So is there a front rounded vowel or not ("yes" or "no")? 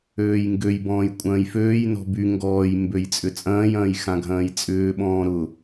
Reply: yes